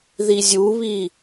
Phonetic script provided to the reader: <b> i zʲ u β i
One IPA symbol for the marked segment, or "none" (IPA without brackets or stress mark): ð